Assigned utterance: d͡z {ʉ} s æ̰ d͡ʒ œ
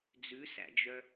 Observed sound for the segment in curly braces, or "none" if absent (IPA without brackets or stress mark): ʉ